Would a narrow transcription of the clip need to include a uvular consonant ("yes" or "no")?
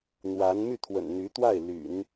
no